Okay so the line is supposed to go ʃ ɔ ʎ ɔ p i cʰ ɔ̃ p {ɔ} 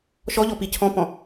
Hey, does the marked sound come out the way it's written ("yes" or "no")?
no